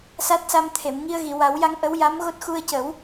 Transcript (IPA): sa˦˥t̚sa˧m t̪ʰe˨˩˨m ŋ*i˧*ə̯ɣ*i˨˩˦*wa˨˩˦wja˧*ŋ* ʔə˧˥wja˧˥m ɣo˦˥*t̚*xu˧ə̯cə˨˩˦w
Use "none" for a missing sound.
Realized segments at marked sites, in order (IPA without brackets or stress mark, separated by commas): i˧, i˨˩˨, ŋ, t̚